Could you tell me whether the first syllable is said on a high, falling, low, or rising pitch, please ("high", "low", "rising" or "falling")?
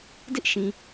high